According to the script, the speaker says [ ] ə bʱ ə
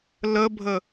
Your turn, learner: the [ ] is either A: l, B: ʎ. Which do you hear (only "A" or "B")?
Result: A